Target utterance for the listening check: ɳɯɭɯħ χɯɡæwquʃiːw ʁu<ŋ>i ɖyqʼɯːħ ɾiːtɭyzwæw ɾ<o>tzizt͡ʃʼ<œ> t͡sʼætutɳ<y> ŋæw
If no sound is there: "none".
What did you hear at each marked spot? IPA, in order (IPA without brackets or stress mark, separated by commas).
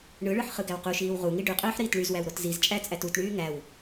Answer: ŋ, o, æ, yː